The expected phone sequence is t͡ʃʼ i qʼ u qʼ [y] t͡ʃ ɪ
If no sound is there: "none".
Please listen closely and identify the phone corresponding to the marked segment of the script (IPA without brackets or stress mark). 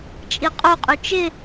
y